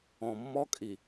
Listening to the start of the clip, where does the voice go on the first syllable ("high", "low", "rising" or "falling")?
low